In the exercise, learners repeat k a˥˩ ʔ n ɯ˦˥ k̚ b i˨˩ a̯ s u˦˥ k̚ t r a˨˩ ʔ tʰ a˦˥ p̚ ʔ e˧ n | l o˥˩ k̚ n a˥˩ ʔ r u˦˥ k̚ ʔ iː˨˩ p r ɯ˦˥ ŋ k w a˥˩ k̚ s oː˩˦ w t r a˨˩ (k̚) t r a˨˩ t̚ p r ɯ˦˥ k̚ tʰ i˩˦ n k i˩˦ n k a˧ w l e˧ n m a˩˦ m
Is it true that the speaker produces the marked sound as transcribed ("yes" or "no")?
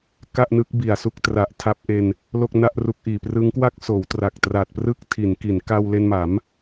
yes